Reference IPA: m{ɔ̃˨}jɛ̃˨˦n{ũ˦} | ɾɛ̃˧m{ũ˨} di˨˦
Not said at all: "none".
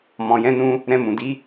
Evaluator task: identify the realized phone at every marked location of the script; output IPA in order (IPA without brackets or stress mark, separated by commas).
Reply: ɔ̃˨, ũ˧, ũ˨